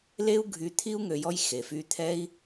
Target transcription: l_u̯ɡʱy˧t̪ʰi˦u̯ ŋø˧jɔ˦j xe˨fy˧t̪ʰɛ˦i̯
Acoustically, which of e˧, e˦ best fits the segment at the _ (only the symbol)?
e˦